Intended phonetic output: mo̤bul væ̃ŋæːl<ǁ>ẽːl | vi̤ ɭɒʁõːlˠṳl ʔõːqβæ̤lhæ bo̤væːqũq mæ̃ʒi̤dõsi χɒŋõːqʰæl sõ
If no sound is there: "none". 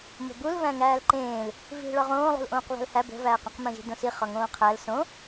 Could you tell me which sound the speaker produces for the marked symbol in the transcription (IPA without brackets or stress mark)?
ǃ